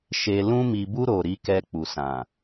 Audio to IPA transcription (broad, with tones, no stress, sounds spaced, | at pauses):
ʃ e˨ l ũ˧ m i˨ b u˧ ɾ o˨ ɾ i˨˦ k ɛ˧ k͡p u˨ s ã˨